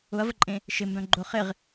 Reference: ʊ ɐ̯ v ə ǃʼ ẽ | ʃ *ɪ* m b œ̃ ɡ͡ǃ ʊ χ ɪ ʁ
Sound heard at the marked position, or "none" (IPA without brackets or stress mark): ɪ